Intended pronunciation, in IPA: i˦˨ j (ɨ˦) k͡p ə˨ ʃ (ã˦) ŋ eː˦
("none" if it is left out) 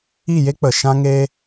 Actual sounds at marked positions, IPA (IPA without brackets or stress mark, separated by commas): e˦, ã˦